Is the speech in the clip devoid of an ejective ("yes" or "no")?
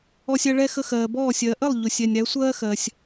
yes